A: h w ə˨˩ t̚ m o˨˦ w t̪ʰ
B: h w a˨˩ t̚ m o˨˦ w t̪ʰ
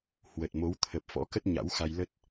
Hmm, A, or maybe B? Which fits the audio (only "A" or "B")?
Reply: A